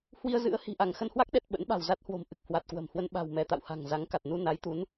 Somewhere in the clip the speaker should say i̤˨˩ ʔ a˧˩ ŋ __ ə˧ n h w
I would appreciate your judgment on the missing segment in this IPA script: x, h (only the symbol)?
x